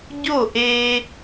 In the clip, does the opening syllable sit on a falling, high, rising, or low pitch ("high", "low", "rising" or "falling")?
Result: falling